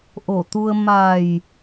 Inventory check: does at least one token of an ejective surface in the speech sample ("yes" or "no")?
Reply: no